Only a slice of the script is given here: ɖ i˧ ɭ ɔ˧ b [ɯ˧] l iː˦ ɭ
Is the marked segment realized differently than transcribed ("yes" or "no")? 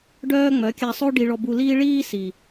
yes